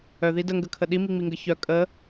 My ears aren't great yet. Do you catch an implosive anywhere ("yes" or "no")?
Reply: yes